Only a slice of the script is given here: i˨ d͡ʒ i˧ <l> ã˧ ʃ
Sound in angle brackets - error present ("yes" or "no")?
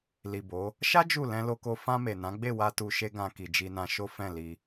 yes